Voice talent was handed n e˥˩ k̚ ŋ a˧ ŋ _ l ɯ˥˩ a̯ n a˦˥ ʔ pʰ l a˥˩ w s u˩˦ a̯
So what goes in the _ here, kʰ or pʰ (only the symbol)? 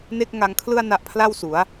kʰ